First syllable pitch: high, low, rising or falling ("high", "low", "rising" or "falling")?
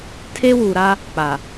high